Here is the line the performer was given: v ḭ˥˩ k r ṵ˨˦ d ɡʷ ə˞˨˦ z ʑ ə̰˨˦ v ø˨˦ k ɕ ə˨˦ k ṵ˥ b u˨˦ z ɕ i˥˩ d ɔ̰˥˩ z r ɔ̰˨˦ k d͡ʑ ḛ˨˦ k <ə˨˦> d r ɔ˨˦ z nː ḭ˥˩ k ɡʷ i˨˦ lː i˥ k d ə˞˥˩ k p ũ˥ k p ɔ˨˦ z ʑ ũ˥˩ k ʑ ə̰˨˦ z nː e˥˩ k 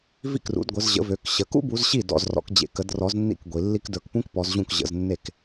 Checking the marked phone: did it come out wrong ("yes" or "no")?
no